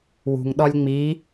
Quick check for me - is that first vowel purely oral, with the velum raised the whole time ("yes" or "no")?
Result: yes